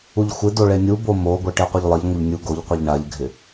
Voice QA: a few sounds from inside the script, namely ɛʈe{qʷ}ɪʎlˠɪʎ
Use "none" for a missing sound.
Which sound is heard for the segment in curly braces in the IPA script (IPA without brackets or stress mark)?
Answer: qʷ